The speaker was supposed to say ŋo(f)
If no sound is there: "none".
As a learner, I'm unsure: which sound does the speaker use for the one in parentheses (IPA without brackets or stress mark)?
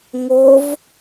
v